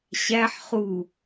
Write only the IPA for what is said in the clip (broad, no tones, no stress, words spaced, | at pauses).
ɕæħ χu